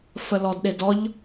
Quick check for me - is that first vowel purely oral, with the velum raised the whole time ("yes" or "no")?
yes